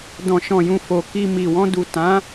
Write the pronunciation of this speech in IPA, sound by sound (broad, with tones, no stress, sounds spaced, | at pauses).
d ɔ̃˨ ʃ ɔ̃˨ j ũ˨ f o˨ k i˧ m i˨ w ɔ̃˧ d u˨ t ã˨˦